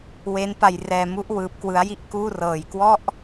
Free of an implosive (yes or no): yes